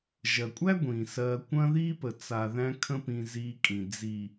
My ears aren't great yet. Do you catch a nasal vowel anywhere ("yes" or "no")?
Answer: yes